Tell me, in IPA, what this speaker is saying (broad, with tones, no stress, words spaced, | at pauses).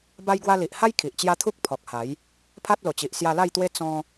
ba˦jɡwa˦ li˨ʔha˦j kʰi˨ʔt͡ɕja˦ t̪ʰu˦k̚ pʰɔ˨k̚ha˨˦j | pʰa˦t̚lo˨˩t͡ɕi˨ʔ sja˧la˥˧jt̪we˦ t͡sɔ̃˦